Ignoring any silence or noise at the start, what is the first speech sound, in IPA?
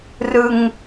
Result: r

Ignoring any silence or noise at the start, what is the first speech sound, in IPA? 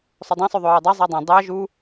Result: sˤ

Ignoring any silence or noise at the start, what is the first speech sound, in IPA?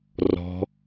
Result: r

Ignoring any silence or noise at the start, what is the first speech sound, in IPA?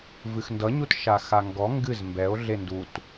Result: v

